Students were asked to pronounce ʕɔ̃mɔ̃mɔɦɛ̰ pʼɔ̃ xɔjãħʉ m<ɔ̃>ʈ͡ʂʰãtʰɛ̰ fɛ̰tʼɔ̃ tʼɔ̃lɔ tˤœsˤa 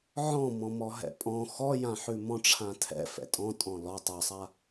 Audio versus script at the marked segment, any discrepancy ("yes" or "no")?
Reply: no